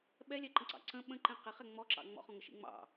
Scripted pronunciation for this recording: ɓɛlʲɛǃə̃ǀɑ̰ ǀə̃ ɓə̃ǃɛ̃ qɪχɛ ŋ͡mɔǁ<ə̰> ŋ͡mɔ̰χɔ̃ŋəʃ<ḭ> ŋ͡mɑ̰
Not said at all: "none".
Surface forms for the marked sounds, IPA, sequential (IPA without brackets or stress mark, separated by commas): ɑ̰, ḭ